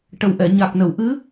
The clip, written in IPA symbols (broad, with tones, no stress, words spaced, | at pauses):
ʈə˨˩wʔɛ˨˩˨ ɲa˨˩k̚nə˨˩˨w ʔɨ˧˥